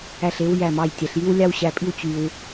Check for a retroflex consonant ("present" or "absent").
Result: absent